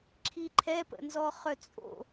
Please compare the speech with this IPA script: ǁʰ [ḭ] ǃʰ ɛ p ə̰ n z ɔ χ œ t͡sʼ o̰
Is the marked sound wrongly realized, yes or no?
yes